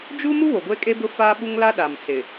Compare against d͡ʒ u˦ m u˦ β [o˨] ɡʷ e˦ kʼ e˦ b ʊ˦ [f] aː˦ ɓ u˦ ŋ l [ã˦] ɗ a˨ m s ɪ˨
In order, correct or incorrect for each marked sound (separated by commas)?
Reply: correct, correct, incorrect